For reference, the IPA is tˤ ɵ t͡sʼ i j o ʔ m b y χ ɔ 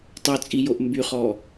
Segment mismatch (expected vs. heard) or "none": none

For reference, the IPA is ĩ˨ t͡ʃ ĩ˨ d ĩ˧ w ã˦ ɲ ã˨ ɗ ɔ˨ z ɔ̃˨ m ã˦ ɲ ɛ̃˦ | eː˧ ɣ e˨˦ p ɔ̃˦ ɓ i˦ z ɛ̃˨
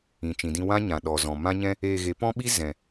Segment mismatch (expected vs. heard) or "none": none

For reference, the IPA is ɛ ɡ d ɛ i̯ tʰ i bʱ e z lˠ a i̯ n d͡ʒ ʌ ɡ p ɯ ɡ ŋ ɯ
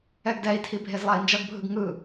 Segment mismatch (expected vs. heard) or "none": p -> bʱ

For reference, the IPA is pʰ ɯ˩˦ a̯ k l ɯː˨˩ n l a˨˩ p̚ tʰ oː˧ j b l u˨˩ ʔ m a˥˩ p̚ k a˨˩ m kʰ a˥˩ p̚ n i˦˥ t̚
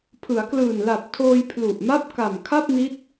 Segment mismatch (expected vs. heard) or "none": b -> pʰ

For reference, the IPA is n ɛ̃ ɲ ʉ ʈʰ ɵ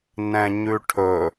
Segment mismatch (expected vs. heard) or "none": none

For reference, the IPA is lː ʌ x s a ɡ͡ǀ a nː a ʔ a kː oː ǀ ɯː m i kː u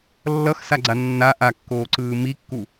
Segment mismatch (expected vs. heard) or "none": none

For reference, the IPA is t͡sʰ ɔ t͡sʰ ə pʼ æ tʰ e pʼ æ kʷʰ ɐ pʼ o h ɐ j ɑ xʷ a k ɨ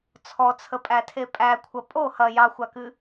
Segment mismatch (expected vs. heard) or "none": none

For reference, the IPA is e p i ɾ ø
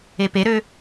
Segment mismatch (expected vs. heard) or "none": i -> e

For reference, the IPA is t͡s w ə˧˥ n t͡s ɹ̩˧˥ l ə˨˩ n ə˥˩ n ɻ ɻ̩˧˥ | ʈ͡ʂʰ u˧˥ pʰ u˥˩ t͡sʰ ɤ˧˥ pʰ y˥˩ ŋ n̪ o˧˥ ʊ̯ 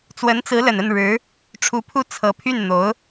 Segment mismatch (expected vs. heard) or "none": ŋ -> n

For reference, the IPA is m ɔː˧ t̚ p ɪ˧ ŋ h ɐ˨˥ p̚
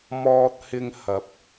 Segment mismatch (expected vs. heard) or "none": p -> h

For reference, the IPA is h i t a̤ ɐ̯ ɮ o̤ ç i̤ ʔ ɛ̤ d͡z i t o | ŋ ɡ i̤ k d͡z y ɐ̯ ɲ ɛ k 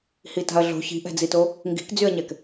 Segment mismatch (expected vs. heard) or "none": none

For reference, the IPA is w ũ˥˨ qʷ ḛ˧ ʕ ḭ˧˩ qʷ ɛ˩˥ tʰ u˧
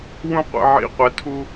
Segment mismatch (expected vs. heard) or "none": none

